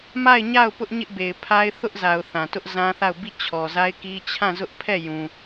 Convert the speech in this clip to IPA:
m a˦˨ ɪ̯ ɲ a˦˨ ʊ̯ p ʊ˦ ʔ ɲ ɪ˦ ʔ b e˨ ɪ̯ pʰ a˦ ɪ̯ θ ʊ˦ ʔ z a˨ ʊ̯ θ ã˨ t ʊ˦ ʔ z ã˦ θ a˦˨ ʊ̯ b i˦˨ t͡ɕʰ ɔ˨ z a˦ ɪ̯ k i˦ t͡ɕʰ ã˦˨ z ʊ˦ ʔ pʰ ɛ˦˨ j ũ˨

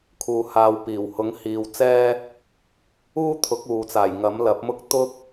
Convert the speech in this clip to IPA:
kʰ uː˨ h aː˨ w p iː˨˩ w h ʊ˨˥ ŋ h iː˨ w t͡s ɛː˥ | uː˥ t̪ʰ ʊ˨˥ k̚ uː˨ t͡s aː˨˩ j ŋ ɐ˨˥ m l ɐ˨˥ p̚ m ʊ˥ k̚ t̪ ʊ˥ k̚

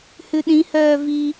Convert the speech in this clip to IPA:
h ʉ ɗ ĩ h œː v i

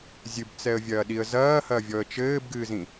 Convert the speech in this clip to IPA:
zʲ ɨ b t͡s ɛ ə̯ vʲ ɐː ɗ i ə̯ z ɐː h ɐ vʲ ɔ ə̯ t͡ʃ ɘː b ɡ ɨː z ĩ

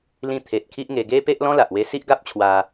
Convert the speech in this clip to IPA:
l ĩ˧ t̪ʰ e˨ t̚ kʰ i˦ ʔ ŋ e˧ ɡ e˦ p e˦ ʔ l ɔ̃˦ l a˨ ʔ w e˧ s i˦ ʔ ɡ a˦ p̚ t͡ɕʰ w a˧

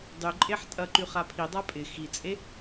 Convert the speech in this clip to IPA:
dˤ y ǃʼ e ħ tʼ ɐ ǃ y χ a pʰ i dˤ a pʼ ɪ x i t͡sʼ e

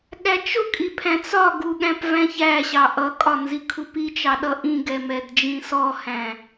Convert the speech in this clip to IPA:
ɠ æ t͡ʃ ʊ kʼ i pʰ æ̃ t͡s ɒ ɡ u ɠ æ̃ p v æ̃ ç æ ɕ ɑ ʔ ʌ kʼ ɒ n z i kʰ u p i t͡ʃ ɑ ɗ ʌ ʔ ĩ ɡ ɛ m ɛ d d͡ʒ ĩ s ɔ h æ̃

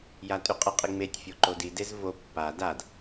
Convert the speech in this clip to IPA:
j a tʼ y qʼ ə qʼ i ŋ͡m e tʲ fʲ o ǃ o d i d e z v o pː a d a d

